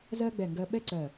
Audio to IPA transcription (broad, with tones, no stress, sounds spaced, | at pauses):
z ɜ˥ ɡ͡b ɛ˧˩ ŋ ɡ ɜ˧ ɓ ɛ˥ ǀ ɜ˧˩